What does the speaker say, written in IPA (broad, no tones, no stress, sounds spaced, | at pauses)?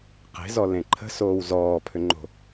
q e̤ z ɔ l ẽ ǃʰ ə̤ s oː w z ɔː pʰ ʏ ŋ͡ǃ o̤